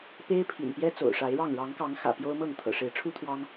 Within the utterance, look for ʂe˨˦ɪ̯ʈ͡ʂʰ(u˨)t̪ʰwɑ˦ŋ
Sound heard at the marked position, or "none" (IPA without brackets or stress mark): u˦